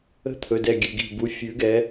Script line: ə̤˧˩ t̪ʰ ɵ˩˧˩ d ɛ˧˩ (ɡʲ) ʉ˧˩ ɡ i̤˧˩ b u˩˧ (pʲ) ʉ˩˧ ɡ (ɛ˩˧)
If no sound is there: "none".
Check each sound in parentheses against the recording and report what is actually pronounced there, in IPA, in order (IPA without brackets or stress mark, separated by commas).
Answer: ɡʲ, fʲ, ɛ˩˧